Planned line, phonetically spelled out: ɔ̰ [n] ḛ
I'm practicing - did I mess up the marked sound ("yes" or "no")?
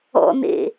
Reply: no